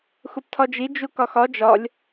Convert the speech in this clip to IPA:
x u p tʰ ɒ d͡ʒ i d͡ʒ u k ɒ x ɒ d͡ʒ ɒ lʲ

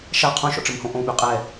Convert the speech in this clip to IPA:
ʃ a qʰ õ ʃ ɔ̰ ʈ͡ʂ ə m h õ ʔ õ ɓ y qʼ ɛ

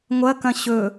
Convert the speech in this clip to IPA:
ŋʷ ɐ k ɐ̃ ɕ ɵ

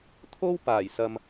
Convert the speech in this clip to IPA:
t̪ʰ o˥ w p aː˨˩ j s ɐ˨ m

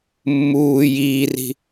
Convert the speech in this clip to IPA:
mː uː j iː r i̤

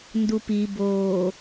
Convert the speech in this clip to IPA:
n d u p i b oː

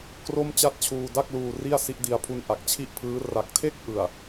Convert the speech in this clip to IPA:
k r o˥˩ m t͡ɕ a˥˩ t̚ t͡ɕʰ uː˧ d a˥˩ k̚ l uː˧ r i˥˩ a̯ s i˦˥ ʔ d i˧ a̯ pʰ u˧ n ʔ a˨˩ k̚ t͡ɕʰ i˥˩ ʔ pʰ ɯː˦˥ r a˨˩ k̚ tʰ e˥˩ k̚ ʔ ɯ˨˩ a̯

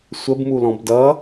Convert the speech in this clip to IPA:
sʷ ə b m u l ɔ̃ b d ʌ

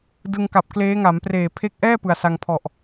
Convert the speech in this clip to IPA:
d ɯ˧ ŋ k a˨˩ p̚ k l eː˦˥ ŋ a˩˦ m p r eː˨˩ pʰ e˦˥ k̚ ʔ ɛː˥˩ p ɯ˨˩ a̯ s a˧ ŋ pʰ ɔ˨˩ ʔ

